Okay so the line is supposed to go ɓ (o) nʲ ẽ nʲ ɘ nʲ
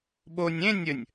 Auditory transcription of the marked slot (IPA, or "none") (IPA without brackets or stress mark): o